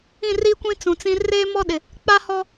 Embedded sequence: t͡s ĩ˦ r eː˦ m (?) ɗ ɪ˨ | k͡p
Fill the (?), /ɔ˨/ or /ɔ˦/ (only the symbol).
ɔ˦